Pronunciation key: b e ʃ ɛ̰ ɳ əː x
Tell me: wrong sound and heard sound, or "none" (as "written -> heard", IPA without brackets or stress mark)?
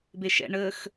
none